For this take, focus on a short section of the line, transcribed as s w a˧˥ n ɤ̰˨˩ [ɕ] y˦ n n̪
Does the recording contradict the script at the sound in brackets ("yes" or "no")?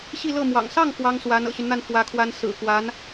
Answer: no